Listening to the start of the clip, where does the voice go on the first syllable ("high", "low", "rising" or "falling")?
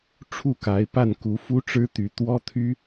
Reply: falling